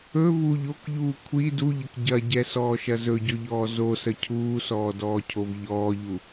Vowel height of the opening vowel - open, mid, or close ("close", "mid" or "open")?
mid